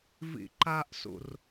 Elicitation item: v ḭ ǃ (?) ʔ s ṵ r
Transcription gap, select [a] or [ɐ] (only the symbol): a